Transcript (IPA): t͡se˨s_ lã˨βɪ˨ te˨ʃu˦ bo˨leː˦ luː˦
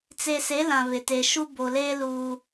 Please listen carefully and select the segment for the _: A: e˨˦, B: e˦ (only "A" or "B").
A